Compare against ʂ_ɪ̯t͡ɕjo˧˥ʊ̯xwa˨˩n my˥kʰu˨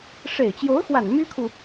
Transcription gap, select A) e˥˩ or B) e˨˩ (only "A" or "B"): B